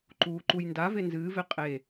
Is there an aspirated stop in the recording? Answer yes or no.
no